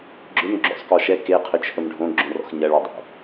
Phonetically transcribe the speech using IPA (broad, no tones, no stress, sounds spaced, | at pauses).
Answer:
ɡ͡ǁ ʏ m ɡ͡ǁ o̰ sˤ k ɔ ʃ ɛ k e qʰ ʏ t͡ʃʰ ə m ɖʱ õ ɡ͡ǁ õ r ɔ̰ x ɲ ɐ ɭ ɔ dˤ o̰